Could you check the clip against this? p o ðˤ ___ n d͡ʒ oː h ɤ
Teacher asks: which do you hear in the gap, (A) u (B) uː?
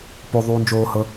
B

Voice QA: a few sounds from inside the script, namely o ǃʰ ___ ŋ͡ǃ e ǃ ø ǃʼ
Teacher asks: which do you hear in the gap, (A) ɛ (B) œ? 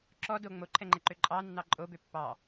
A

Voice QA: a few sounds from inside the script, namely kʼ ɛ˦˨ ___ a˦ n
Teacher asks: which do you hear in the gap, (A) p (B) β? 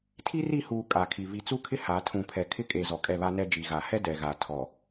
B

